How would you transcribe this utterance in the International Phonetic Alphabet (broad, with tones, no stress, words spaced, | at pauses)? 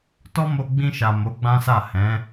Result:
tɔ˦mo˧ ɡ͡bĩ˧ʃa˨ mo˨˦ɡ͡bã˦sa˦˨ hɛ̃˨˦